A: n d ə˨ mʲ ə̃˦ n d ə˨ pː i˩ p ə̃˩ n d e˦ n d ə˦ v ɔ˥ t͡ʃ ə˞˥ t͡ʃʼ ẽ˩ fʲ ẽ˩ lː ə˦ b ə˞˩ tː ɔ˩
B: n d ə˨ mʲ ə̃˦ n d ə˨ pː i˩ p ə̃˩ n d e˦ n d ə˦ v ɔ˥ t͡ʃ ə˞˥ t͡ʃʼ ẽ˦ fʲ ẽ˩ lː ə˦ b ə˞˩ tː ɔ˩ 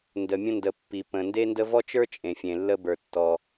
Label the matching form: A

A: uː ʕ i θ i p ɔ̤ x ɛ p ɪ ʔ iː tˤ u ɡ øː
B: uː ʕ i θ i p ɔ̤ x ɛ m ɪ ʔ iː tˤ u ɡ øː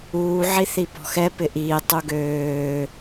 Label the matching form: A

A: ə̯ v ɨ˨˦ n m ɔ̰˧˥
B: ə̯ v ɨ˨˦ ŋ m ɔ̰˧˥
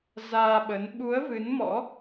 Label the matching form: A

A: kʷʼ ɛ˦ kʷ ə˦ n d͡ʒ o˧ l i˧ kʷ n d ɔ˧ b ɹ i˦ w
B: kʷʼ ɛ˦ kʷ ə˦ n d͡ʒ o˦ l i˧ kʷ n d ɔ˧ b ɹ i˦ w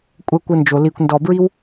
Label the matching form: A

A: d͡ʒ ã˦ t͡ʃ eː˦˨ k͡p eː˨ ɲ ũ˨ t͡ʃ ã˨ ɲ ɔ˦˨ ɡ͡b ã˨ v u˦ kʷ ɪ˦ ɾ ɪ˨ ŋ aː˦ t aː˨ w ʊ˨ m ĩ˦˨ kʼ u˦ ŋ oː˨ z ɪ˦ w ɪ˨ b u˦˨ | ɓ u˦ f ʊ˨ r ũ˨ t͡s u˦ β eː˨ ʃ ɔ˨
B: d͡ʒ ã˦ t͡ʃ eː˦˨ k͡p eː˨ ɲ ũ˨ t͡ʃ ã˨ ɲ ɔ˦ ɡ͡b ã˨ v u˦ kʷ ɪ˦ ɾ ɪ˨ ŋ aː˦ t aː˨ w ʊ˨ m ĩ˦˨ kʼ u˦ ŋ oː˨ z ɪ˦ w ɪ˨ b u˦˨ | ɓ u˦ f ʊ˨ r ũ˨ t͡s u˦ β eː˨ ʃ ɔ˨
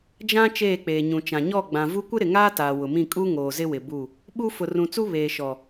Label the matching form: A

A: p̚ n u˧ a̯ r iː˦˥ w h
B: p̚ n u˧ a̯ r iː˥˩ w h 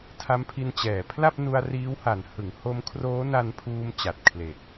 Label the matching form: A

